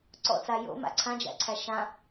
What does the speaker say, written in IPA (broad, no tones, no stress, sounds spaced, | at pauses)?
ǀ ɔ̰ t͡s a j o̰ m a̰ ǀʰ ã d͡ʒ æ̰ ǀʰ æ ʃ ã